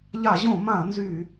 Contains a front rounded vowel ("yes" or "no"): yes